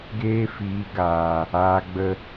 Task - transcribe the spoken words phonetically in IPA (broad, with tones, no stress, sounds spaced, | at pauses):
ɡ eː˦ f iː˨˦ ɡ aː˨ | aː˨ ɡ͡b ə˧